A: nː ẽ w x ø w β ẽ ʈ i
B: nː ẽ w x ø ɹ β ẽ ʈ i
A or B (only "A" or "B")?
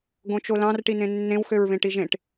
B